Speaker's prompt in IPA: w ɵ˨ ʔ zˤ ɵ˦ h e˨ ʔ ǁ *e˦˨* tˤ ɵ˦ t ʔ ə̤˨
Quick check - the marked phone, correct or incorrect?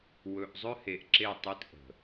correct